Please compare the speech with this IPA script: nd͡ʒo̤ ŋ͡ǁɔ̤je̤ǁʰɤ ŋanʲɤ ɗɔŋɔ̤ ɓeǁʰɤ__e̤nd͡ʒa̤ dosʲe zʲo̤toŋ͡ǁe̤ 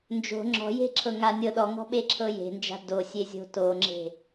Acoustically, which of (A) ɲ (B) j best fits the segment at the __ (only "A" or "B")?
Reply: B